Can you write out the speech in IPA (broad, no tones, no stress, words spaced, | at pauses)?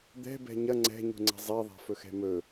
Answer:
d̪ɛ̤bɛ̤ ɲɐ ŋ͡ǀɛ̤ɲṳŋ͡ǀɛ̤ zˤɛðˤa̤fɵxɛ̤ mɵ